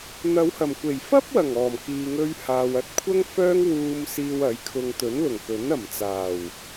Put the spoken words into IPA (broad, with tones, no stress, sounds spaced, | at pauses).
n̪ ɐ˨˧ w h ɐ˨˩ m kʷ e˨˩ j f ɐ˥ p̚ w ɐ˨˩ ŋ ɔː˨˩ m k iː˨ ŋ ɵ˧ ɥ h aː˨ w ɐ˧ t̚ kʷʰ ɐ˥ ŋ f œː˥ ŋ w uː˧ m s iː˧ w ɐ˨˥ j kʰ ʊ˧ ŋ t̪ ɵ˨˥ n l ʊ˨˩ ŋ k ɵ˨˥ n ɐ˨˩ m t͡s aː˨˩ w